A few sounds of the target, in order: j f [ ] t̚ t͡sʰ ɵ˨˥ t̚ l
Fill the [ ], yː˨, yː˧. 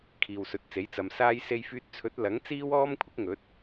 yː˧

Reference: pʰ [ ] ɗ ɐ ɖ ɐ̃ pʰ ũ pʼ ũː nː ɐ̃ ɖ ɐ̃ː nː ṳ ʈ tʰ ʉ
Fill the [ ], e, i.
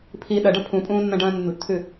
i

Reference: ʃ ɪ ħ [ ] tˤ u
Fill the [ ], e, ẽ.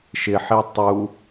e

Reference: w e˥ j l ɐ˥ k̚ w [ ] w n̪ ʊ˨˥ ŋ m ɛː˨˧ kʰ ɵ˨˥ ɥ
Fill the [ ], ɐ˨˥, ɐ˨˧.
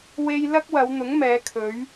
ɐ˨˧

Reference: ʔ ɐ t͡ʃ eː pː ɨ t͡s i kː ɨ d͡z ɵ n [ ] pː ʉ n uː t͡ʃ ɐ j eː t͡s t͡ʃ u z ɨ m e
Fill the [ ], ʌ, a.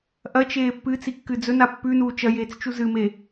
a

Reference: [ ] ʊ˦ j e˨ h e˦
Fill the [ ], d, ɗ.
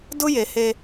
d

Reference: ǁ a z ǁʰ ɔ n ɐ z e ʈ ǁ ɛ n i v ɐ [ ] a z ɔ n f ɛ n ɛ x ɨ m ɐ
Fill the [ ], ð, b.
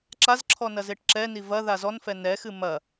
ð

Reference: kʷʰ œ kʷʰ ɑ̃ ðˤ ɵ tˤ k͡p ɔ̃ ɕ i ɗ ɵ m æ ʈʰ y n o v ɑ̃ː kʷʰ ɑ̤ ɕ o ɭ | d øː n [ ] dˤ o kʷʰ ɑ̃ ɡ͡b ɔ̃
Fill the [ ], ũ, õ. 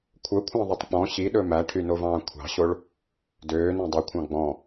õ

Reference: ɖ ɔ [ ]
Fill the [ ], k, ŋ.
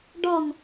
ŋ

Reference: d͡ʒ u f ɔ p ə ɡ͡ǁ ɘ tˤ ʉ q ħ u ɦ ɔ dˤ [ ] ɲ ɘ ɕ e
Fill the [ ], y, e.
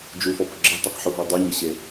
y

